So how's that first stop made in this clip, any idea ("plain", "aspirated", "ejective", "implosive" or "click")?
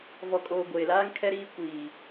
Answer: ejective